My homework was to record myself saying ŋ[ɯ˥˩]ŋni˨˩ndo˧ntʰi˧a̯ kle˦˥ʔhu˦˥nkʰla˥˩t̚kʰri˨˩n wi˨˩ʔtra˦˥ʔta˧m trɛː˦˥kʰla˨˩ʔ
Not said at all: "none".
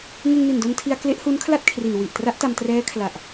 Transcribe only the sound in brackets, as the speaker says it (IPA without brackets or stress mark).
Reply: ɯ˧